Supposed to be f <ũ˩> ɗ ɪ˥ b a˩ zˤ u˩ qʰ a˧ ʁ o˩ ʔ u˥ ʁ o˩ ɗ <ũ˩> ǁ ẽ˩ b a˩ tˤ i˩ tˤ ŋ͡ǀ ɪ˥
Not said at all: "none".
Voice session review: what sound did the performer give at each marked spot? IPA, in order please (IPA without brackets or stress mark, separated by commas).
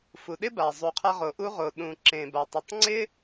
u˩, ũ˩